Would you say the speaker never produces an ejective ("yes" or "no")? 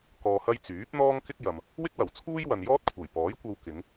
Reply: yes